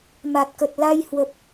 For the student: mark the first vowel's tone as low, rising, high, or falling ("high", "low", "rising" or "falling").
low